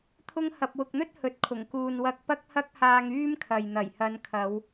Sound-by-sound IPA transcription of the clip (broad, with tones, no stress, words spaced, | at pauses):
t̪ʰʊ˥ŋ hɐ˧p̚ wʊ˨k̚n̪ɵ˥t̚ hɵ˨˥t̚kʰʊ˨˩ŋkuː˨n wɐ˧k̚pɐ˥k̚hɐ˥k̚haː˧ŋ yː˥mkʰɐ˨j n̪ɐ˨˩jhɐ˨˧nkʰɐ˨˧w